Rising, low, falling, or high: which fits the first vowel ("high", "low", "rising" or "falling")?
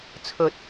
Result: low